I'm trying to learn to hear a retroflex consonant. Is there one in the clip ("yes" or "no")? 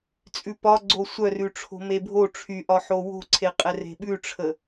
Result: yes